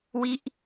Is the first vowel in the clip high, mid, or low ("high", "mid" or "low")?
high